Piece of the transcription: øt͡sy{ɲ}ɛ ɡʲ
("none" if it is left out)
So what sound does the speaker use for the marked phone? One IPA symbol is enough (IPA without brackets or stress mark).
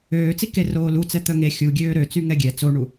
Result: ŋ